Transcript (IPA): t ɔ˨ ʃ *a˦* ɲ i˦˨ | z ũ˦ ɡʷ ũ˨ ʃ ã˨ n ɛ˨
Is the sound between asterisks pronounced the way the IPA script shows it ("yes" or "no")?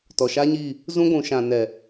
yes